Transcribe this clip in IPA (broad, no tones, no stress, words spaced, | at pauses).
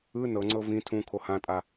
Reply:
ɯ nɤŋ͡ǀɤ vĩ tʰũkʰo hãtʼa